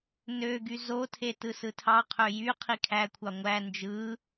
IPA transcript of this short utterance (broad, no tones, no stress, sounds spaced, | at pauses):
n ø ɡ y z o tʰ e t ɯ s ɯ tʰ ɑ qʰ ø j y qʰ i kʰ æ kʷʰ ɑ ŋʷ æ n d͡ʒ ɯ